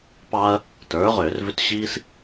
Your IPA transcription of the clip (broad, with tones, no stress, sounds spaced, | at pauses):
p ɑ˦ ɐ̯ | t ə˞˩˥ ʁ ʏː˧˩˧ r v ʏ˦ t ɕ iː˦ s